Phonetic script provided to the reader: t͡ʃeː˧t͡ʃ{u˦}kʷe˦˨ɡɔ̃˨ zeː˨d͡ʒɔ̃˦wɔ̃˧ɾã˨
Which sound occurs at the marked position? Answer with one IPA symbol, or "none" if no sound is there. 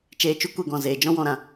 u˦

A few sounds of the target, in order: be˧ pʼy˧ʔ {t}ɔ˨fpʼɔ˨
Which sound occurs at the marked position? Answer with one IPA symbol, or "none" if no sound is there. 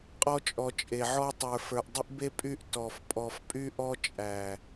t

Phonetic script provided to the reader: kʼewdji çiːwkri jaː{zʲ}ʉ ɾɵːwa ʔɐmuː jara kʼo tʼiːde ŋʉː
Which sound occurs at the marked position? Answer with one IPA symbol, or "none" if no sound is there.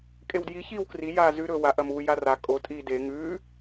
z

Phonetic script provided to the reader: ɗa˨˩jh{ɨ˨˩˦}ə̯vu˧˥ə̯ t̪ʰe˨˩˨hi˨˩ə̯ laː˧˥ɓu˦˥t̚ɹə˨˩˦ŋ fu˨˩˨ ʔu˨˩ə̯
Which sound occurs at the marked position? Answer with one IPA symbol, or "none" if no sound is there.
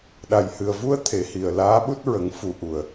ɨ˨˩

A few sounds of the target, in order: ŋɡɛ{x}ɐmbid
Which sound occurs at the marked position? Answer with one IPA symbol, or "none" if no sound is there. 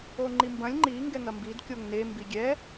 ŋ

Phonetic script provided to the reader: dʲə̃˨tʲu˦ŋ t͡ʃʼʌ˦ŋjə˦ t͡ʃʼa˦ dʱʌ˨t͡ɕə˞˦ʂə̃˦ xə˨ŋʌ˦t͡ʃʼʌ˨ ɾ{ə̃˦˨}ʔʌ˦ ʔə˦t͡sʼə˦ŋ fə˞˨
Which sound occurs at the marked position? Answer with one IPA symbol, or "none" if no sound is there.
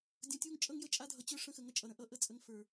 ə̃˦˨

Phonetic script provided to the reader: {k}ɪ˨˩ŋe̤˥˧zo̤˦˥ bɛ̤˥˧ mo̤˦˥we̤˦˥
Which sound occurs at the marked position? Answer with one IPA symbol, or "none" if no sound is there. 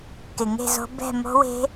k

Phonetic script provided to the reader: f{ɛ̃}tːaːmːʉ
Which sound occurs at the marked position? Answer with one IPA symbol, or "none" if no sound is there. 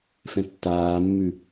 ɛ̃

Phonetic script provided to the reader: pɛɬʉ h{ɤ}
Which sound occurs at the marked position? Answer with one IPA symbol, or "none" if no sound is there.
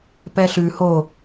o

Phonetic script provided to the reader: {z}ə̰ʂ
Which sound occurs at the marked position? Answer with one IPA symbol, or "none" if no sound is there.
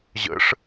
ʑ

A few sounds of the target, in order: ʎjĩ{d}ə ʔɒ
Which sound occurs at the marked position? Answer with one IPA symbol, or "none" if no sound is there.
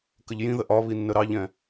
ð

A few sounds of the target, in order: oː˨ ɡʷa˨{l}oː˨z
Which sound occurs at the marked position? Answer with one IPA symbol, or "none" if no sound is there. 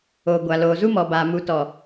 l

